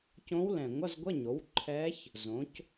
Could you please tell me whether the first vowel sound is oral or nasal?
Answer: nasal